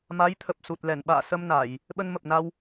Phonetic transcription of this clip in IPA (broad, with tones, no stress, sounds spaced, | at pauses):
m a˨˦ j t̪ʰ ə˨˩ p̚ s u˨˩ t̚ l ɛ˧˩ n ɓ a̰ː˧˨ s ə˧ m n a˧˩˨ j | ɓ ə˧ n m ə˨˩ p̚ n a˧ w